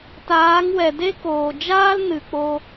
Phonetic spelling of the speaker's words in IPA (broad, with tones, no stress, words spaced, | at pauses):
taː˨˦ŋwɛ˨de˦koː˨ d͡ʒaː˦l nɨ˨k͡po˧